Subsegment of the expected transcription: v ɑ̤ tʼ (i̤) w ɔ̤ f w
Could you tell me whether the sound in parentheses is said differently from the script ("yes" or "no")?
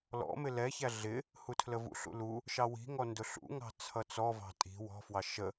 no